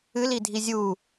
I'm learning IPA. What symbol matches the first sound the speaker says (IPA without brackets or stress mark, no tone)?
ɨ